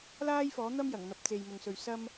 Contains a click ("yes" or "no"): no